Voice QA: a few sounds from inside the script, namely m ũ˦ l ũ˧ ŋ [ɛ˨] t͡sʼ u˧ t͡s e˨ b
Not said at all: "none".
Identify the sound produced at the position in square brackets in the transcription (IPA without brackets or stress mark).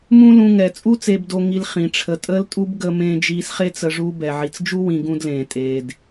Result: ɛ˨